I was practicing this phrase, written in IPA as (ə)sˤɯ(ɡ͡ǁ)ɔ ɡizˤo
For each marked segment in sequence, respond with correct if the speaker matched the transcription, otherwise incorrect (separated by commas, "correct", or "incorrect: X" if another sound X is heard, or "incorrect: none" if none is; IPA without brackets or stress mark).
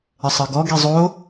correct, incorrect: ɡ